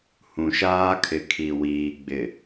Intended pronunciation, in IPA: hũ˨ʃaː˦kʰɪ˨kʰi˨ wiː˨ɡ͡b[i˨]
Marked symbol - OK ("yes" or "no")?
no